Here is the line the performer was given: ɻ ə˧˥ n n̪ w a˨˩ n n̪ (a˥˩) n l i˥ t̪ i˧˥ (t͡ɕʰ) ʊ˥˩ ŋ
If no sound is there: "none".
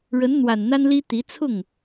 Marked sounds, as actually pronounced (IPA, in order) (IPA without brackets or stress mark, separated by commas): a˥, t͡sʰ